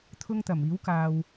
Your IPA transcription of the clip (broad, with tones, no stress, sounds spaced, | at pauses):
t̪ʰ ʊ˥ ŋ t̪ ɐ˨˩ m iː˨˥ w k aː˨ w